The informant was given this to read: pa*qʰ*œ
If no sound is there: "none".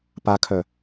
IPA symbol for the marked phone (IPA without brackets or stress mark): kʰ